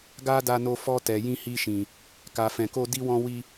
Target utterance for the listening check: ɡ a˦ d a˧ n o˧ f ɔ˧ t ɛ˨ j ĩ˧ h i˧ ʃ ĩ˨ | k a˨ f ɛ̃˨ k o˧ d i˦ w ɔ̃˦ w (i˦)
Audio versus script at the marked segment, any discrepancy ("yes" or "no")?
no